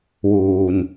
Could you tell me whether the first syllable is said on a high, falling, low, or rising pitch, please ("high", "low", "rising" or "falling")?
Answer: low